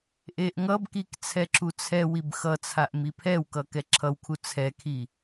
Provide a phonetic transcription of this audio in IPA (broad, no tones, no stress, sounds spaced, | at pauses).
ʔ e ʔ ŋ ʌ b k i k t͡sʰ ɛ ǁ u t͡sʰ ɛ w i b x ʌ t͡sʰ a ʔ m i pʰ ɛ w k ʌ k ɛ ǁʰ ʌ w kʰ u t͡sʰ ɛ kʰ i